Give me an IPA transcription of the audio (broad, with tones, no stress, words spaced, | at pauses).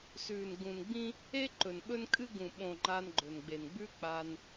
sʉː˨n ɡũ˨nɡ͡bĩ˦ | e˦ ǃɵ˨nɓɵ˦nkʼɨ˦ ɡũ˨ɓõ˨ ŋ͡ǃa˧nɡ͡ǃɵ˨n ɡ͡be˨nɡ͡bʉ˦k͡pa˧n